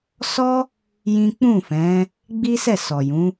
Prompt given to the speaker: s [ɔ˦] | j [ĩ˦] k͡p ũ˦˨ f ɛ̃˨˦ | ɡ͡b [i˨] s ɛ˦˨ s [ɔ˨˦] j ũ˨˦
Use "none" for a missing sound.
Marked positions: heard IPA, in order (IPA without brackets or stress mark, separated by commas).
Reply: ɔ˦, ĩ˦, i˦, ɔ˨